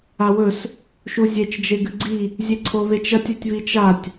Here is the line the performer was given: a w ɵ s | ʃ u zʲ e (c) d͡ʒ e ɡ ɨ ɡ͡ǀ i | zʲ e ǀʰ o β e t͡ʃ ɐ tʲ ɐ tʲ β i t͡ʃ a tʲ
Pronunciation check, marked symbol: incorrect: t͡ʃ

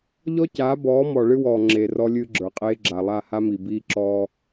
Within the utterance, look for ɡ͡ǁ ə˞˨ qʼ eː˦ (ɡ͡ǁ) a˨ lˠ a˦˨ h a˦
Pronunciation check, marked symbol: correct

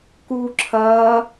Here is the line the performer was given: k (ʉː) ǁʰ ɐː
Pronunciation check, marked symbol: incorrect: uː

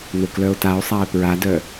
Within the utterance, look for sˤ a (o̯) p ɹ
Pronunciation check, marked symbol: incorrect: e̯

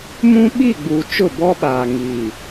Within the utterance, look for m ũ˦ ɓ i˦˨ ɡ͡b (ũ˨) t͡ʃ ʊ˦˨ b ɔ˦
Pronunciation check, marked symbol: incorrect: u˨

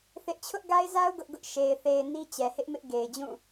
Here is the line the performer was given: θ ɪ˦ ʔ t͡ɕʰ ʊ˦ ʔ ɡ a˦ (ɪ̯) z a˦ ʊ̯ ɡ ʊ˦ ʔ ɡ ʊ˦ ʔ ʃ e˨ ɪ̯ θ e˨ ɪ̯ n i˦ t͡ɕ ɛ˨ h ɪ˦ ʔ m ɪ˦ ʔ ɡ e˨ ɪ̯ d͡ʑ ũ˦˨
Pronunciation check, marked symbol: correct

